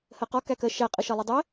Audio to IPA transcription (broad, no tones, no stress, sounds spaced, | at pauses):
h ɜ q ɒ k æ k ɜ ʃ æ qʼ ə ʃ ʌ lˠ i dˤ ɛ